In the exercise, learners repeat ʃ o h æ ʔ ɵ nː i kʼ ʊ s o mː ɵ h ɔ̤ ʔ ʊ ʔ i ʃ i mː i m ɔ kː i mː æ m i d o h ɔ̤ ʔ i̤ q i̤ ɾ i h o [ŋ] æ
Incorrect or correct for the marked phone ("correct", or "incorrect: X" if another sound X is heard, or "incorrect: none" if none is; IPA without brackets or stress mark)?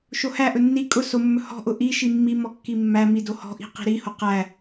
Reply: incorrect: q